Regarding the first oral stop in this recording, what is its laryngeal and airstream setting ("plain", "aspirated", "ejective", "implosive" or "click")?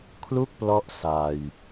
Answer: aspirated